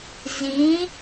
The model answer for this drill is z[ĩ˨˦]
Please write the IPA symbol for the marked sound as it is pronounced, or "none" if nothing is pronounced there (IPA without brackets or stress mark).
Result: ĩ˨˦